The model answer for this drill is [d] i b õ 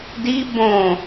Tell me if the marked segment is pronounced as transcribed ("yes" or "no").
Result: yes